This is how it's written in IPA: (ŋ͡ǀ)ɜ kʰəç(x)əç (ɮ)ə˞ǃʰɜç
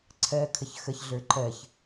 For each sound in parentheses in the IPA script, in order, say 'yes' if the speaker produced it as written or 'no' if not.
no, yes, yes

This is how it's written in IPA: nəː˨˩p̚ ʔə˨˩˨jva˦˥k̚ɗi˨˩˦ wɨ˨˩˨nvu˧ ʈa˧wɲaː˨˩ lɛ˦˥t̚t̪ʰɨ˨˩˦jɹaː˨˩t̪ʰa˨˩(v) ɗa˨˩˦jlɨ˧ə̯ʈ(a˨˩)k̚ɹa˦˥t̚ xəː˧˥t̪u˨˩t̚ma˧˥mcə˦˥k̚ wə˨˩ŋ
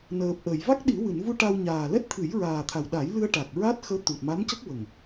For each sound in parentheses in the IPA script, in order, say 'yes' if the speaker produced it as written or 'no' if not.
no, yes

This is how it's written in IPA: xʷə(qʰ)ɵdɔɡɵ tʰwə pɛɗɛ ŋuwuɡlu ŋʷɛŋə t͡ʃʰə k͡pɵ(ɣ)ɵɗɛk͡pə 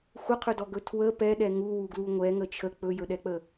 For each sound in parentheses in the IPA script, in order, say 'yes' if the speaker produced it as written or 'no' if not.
yes, no

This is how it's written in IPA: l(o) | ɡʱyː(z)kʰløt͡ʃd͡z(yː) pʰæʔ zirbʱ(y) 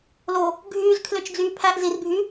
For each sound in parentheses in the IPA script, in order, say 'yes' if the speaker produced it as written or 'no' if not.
yes, yes, yes, no

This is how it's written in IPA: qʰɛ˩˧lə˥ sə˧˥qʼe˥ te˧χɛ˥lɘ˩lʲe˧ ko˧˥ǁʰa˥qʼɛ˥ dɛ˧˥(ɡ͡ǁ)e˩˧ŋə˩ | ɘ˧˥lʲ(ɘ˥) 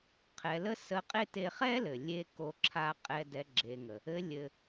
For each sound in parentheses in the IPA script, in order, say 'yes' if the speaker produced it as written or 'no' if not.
yes, no

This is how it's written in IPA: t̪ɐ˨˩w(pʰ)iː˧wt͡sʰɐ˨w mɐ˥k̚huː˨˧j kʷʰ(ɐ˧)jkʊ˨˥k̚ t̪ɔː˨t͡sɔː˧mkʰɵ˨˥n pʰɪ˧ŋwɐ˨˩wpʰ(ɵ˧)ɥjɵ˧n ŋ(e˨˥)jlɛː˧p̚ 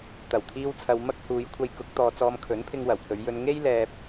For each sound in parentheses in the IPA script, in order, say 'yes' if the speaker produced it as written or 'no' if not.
no, yes, no, no

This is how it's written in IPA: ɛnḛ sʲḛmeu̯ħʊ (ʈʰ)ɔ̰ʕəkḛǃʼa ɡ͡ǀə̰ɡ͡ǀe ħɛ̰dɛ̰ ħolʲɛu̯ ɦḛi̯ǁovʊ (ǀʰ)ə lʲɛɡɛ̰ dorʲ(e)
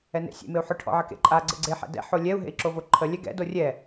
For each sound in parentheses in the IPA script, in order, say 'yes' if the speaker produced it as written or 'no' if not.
yes, no, no

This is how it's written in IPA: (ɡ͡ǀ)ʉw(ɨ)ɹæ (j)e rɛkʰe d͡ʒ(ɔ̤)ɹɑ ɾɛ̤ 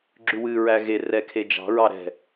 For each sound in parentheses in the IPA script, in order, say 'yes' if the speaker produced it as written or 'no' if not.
no, yes, no, no

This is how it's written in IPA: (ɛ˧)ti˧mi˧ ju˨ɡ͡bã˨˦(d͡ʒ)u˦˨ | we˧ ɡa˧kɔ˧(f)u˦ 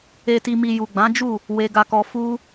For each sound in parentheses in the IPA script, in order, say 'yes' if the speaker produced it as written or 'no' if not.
no, yes, yes

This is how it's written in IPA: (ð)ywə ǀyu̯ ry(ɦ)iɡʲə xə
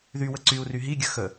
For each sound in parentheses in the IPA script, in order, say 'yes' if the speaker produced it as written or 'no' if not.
yes, yes

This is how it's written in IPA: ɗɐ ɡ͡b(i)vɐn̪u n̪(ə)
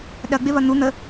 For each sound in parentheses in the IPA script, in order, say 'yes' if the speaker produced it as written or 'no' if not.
no, yes

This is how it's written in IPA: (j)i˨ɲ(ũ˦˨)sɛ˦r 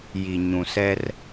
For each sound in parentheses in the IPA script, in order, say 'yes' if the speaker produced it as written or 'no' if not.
yes, no

